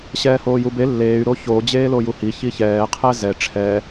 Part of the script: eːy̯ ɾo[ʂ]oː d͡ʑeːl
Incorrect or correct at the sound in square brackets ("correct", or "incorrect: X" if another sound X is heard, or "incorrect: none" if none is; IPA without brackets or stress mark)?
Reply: incorrect: ç